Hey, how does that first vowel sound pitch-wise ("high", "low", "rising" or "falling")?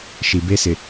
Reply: low